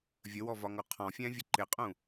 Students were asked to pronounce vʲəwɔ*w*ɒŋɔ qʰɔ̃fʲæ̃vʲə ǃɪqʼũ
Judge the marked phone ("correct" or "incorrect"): incorrect